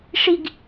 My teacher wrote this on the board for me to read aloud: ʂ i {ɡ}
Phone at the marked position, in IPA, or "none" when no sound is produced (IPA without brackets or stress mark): ɡ